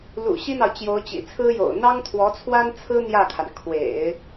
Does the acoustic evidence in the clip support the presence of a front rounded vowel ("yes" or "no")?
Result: no